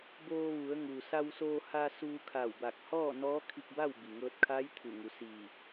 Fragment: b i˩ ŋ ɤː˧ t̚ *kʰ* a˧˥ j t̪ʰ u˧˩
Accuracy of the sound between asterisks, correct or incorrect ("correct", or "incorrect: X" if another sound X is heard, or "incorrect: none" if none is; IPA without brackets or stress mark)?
correct